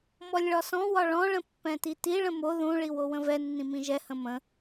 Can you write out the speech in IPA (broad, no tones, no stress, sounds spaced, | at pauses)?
m ɔ lʲ ɭ ɒ s ɔ̃ w ɒ ɭ ɔ̃ ɭ ə̃ pː ɛ̃ t i t i ɭ ə̃ m o ð ũ ɭ i w o w ə̃ v ɛ nː ĩ m ĩ ʒ ɛ h ə̃ m ə̃